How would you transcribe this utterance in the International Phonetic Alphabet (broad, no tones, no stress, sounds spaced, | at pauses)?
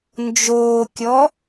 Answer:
n d͡ʒ oː kʲ ɔ